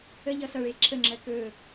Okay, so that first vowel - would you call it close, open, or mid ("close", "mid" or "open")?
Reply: mid